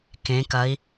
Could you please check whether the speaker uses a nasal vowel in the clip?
yes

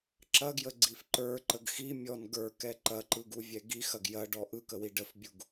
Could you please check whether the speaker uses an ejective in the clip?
no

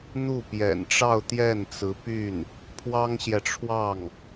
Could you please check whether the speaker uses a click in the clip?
no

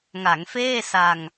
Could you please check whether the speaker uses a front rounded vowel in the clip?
no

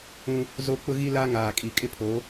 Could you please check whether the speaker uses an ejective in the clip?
yes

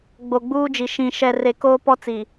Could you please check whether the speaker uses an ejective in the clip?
no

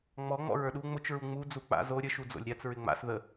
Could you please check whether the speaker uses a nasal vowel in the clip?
no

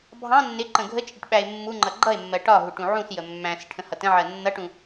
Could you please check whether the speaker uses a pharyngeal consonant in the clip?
yes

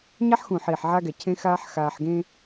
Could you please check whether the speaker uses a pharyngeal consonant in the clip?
yes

